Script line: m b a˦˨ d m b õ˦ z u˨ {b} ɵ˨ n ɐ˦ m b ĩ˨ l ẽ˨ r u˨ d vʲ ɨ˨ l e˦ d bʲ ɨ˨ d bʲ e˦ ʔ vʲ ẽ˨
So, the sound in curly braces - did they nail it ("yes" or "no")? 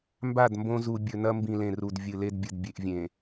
no